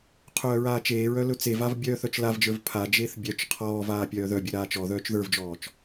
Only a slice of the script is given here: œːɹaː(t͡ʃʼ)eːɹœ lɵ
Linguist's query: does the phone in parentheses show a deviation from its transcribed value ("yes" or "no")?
yes